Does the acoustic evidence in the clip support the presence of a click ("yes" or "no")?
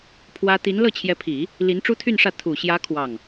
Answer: no